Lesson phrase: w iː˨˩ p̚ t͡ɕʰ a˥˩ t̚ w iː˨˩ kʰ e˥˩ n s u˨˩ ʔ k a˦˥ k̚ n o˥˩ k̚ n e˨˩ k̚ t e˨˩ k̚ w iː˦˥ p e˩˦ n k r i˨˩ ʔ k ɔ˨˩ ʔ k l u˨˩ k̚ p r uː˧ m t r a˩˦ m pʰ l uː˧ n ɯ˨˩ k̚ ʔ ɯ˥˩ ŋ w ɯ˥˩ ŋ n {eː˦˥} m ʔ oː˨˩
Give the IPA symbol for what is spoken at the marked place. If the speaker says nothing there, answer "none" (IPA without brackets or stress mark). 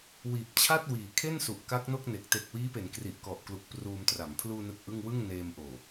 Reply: eː˧